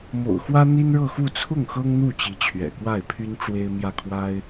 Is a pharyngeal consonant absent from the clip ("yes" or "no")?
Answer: yes